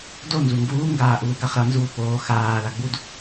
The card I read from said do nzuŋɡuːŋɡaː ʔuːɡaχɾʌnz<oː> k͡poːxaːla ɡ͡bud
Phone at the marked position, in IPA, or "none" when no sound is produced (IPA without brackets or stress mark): uː